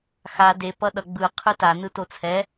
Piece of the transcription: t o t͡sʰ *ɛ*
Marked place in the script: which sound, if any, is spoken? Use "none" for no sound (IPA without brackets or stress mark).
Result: ɛ